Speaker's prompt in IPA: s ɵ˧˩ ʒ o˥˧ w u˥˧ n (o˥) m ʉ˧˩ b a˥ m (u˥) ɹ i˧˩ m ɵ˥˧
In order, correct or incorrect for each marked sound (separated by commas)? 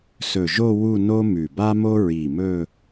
correct, incorrect